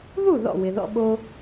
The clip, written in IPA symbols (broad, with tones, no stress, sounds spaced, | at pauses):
ð u˥˩ ð ɔ̰˥˩ w ɪ˩ ð ɔ̰˧ ɓ o˧